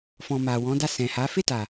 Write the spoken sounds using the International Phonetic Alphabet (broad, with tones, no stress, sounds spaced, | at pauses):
f ɔ̃˨ m a˨ w ɔ̃˨˦ d a˦˨ s ɛ̃˨ h a˨˦ f e˦˨ t a˨